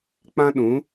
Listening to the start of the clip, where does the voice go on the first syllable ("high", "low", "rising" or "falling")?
high